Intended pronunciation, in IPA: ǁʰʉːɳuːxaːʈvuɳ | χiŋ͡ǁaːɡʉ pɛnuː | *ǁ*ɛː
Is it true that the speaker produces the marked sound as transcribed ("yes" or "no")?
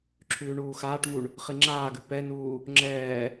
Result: no